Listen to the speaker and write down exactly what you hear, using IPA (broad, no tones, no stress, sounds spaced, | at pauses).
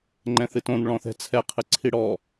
ŋ͡ǃ ɛ̃ θ ɨ t õ n ɭ ɔ̃ θ ɛ̤ t͡sʰ ɛ qʰ ɨ ǀʰ i ɽ ɔ